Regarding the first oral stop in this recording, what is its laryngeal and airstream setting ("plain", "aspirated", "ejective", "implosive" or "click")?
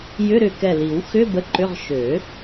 plain